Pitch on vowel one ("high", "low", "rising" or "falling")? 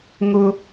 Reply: high